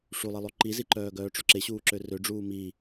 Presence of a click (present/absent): present